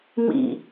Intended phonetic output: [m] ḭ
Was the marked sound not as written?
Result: no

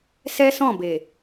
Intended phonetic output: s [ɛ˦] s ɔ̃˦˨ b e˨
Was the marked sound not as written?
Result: no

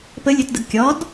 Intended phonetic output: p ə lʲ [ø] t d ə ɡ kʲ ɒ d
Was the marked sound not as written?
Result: no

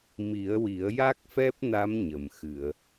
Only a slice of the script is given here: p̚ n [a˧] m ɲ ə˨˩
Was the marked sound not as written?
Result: yes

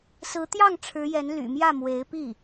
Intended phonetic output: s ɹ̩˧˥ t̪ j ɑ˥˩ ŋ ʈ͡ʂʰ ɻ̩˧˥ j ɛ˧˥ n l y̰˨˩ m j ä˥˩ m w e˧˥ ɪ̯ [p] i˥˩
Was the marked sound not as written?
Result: no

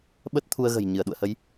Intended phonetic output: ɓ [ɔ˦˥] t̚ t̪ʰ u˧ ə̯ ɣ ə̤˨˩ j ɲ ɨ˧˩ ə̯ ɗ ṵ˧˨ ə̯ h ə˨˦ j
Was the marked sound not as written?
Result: yes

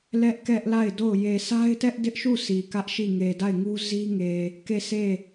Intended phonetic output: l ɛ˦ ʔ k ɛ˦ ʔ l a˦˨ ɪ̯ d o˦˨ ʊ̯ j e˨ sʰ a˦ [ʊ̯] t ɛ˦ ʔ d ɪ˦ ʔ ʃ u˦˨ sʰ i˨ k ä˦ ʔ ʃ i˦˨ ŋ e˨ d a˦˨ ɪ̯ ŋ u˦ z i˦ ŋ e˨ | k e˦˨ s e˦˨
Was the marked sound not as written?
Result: yes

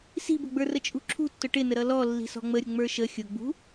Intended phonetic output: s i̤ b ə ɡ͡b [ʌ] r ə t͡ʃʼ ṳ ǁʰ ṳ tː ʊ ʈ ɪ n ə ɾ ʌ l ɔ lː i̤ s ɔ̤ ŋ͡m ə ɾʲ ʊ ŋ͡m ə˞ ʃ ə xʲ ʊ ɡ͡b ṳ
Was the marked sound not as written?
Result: yes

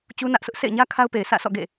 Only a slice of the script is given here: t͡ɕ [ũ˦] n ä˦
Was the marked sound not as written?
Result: yes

